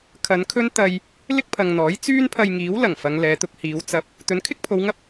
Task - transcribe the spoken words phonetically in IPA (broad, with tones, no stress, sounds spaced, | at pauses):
kʰ ɐ˨˧ n kʰ ɵ˥ n t̪ ɐ˧ j | l ɪ˥ k̚ pʰ ɐ˨ ŋ n̪ ɔː˨˥ j t͡s yː˥ n pʰ ɐ˧ j ŋ iː˨˥ w l ɐ˨˩ ŋ f ɐ˨˧ ŋ l ɛː˨˧ t̪ ʊ˧ k̚ h iː˨˧ w t͡s ɐ˧ p̚ | t̪ ɵ˨˥ n kʰ ɪ˥ k̚ pʰ o˨˧ w ŋ ɐ˥ p̚